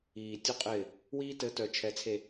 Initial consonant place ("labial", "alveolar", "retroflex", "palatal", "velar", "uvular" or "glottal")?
alveolar